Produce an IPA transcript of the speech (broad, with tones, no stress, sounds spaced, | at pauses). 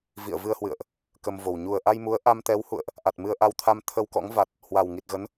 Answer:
v ḭ˧˨ ə̯ v ɨ˧ ə̯ h w ɨ̰˧˨ ə̯ ʔ | k ə˧ m v o˨˩ w ɲ u˨˩ ə̯ ʔ a˧ j m u˨˦ ə̯ ʔ a˧ m t̪ ɛ˨˦ w h ṵ˧˨ ə̯ ʔ | ʔ a˨˩ t̚ m ɨ˧ ə̯ ʔ a˧ w t̪ʰ a˧ m t̪ʰ ə˧ w k ɔ̰˧˥ ŋ v a˨˩ t̚ | h w a˨˩ w ŋ i˨˩ t̚ ɣ ə˨˦ n